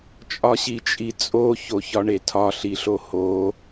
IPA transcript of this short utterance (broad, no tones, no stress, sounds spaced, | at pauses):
t͡ʃʼ ɒ ɕ i t͡ʃʼ i t͡sʼ o ç o ç ɒ ɳ e tʰ ɒ ɬ i ɬ o h o